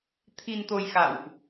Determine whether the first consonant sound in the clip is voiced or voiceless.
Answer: voiceless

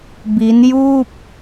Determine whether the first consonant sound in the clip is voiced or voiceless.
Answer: voiced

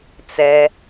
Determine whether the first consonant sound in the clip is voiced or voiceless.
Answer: voiceless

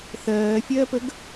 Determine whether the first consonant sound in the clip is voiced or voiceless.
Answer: voiceless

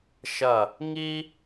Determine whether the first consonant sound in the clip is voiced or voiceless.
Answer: voiceless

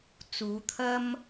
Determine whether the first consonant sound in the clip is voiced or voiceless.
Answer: voiceless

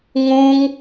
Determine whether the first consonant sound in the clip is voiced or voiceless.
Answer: voiced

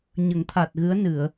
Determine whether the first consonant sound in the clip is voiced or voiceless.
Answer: voiced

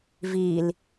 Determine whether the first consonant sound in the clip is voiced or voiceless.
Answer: voiced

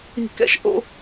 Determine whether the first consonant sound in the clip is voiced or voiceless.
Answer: voiceless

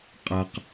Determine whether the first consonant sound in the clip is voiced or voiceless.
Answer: voiceless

